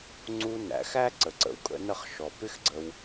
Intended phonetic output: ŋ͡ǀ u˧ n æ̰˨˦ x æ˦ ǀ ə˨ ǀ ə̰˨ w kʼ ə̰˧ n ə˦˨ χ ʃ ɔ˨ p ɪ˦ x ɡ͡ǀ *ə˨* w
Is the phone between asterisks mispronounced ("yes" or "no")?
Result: yes